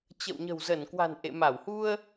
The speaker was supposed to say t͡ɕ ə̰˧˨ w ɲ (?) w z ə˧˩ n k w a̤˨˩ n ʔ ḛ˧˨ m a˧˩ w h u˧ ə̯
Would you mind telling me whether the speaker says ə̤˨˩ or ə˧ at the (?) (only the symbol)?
ə̤˨˩